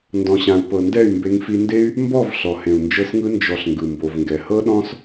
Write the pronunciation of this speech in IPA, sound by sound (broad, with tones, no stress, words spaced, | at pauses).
ndɔ̃˨ɕã˨u̯pɤ˨ ndɛ˦˨y̯mbe˧ŋfi˧nde˦y̯ | mbɔ˦˨v ɬɔ˨hẽ˨u̯nd͡ʒɤ˧sŋɯ˧ nd͡ʒɔ˨ɬ ŋɡɯ˨mbo˨vŋɡɛ˨ hɤ˦ɗɔ̃˦s